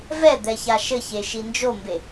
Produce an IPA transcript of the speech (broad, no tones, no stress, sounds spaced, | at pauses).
v ɛ d̪ ɛ ç a ʃ ɘ ç e ʃ i n d͡ʒ o m b e